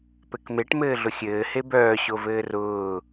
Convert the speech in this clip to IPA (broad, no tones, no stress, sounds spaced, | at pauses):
p ɘ k m e ʈ m ɘː ɮ ʊ xʲ ɘː h e b œː ɕ o v ɘː r ʊː